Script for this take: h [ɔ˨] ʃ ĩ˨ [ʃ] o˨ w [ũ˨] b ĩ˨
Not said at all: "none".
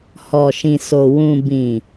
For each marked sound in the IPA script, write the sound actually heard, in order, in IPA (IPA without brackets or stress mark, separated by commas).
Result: ɔ˨, s, ũ˨